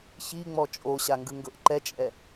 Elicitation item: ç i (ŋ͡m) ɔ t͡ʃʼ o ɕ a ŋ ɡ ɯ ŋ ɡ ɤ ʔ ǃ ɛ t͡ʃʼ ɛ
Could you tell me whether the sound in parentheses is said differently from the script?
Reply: no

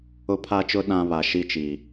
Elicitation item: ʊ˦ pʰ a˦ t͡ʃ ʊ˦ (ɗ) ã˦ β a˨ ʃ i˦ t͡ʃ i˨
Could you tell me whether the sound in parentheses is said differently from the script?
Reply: no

